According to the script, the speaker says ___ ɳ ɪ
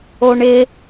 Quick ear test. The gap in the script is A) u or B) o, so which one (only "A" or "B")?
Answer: B